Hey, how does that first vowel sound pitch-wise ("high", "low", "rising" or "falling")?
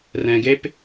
low